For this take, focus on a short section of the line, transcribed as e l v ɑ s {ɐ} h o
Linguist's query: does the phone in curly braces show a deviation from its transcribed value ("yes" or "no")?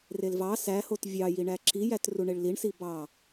yes